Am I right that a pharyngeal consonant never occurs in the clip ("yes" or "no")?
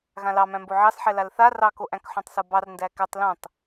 no